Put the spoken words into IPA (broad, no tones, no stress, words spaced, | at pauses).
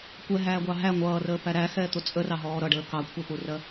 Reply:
kʷɛɦæːɡʷɑ ɦæ ŋʷʌːrəːpæ ɾæxɛːt̪ʊ t͡sʼərɑɦɔː ɾʌɖəː kɑkʷʰɛpurɜ